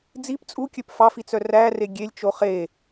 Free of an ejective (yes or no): no